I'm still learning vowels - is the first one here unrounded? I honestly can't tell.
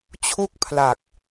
no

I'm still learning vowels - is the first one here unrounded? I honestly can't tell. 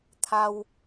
yes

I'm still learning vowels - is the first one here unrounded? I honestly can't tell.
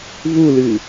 no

